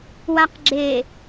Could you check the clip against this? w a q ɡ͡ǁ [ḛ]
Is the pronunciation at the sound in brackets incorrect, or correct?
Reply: incorrect: e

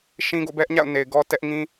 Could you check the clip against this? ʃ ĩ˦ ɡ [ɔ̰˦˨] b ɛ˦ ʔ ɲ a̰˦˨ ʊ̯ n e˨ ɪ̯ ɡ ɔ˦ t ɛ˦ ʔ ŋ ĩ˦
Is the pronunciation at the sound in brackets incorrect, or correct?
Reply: incorrect: o̰˦˨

